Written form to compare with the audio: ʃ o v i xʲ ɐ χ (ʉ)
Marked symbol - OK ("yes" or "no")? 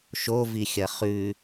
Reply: yes